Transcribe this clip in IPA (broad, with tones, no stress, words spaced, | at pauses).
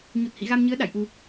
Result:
ɲu˨˩t̚hḭ˧˨ ɣa˧mɲɨ˨˦ə̯ ɗa̰˧˨jʔu˨˩